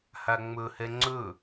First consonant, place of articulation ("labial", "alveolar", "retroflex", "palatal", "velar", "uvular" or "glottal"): glottal